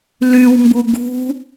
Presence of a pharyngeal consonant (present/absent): absent